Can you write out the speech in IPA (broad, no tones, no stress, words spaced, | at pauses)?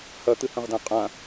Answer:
hɐt̪ɨhɐ̃ʁdã qʼã